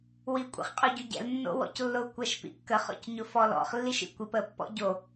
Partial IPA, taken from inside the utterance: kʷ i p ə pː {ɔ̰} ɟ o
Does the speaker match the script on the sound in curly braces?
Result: yes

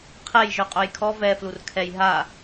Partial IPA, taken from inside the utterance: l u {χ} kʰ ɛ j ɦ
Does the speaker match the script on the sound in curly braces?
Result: no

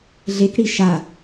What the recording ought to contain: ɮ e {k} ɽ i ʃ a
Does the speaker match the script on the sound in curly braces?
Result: yes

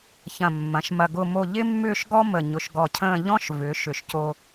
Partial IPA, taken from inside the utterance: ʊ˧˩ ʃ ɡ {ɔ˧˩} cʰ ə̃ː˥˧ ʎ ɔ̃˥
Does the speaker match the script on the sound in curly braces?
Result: yes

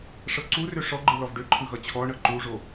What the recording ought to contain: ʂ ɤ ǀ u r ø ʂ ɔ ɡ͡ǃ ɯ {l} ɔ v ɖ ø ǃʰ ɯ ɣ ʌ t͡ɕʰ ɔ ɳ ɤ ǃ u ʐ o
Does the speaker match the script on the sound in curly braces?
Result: yes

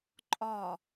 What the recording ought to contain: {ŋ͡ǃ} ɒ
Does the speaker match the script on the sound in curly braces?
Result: no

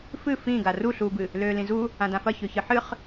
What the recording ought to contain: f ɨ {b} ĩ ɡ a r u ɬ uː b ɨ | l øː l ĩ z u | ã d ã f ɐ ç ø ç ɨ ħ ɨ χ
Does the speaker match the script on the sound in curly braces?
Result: no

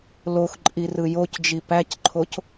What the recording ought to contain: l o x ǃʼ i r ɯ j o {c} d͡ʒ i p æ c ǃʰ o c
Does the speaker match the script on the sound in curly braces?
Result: yes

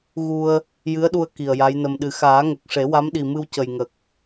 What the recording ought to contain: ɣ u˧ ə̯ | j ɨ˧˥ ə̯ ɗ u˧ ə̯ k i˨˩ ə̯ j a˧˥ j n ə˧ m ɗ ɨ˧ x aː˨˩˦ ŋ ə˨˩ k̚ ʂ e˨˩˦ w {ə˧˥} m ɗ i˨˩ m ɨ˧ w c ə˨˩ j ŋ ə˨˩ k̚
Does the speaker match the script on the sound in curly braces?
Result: no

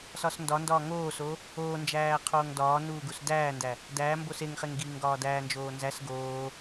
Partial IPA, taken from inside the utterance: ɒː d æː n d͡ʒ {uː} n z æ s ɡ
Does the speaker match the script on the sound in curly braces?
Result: no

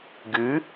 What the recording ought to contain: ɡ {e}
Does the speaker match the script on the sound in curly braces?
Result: no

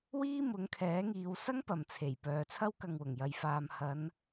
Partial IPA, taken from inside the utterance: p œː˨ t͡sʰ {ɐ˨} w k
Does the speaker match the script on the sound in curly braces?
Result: no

